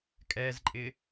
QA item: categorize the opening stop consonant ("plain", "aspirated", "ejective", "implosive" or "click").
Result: ejective